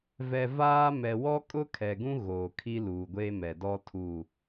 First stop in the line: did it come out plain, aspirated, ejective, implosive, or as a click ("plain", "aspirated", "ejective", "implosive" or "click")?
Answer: ejective